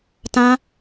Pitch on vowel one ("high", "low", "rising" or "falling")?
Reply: high